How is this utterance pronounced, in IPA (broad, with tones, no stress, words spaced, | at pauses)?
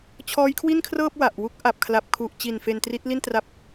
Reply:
t͡ɕʰɔː˦˥jkʰwi˥˩nkʰrɤː˥˩p̚ wa˨˩ʔwu˦˥k̚ ʔa˨˩p̚ kʰla˨˩p̚kʰu˨˩ʔt͡ɕi˨˩n fe˧ntri˦˥t̚li˥˩ntra˦˥p̚